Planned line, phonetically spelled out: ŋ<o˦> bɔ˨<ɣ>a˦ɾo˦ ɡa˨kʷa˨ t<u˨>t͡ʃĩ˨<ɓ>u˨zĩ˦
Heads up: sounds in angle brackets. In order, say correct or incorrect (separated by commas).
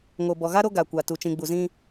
incorrect, correct, correct, incorrect